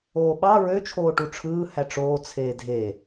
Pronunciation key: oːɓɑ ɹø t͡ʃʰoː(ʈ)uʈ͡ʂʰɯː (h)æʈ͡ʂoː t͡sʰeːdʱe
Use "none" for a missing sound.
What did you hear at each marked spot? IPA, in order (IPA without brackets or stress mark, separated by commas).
ʈ, h